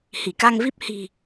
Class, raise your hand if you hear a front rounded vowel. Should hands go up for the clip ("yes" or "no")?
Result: no